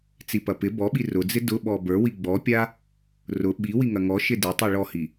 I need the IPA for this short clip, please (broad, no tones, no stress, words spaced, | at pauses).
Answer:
t͡sipɐpɪ bɔɓi rʊd͡zɪ dʊɓɔ bə˞wi ɡ͡bɔpʲa | rʊ ɓiwiŋɐ ŋɔ ʃɪdɪtˤi ɭɔhi